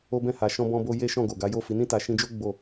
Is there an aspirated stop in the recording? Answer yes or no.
no